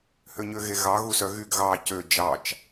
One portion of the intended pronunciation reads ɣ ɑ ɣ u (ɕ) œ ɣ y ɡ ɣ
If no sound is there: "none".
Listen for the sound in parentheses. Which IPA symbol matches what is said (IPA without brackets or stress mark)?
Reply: s